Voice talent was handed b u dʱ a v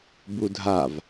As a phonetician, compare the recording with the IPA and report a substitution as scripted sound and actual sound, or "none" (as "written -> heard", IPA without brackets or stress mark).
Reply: none